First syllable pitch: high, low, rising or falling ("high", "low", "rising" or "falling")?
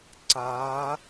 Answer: rising